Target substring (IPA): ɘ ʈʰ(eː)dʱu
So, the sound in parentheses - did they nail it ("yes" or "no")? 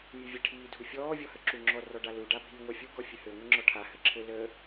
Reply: no